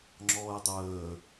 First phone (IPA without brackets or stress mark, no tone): ŋ͡ǁ